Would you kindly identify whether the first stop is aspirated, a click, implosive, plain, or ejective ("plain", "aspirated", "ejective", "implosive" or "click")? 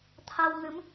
aspirated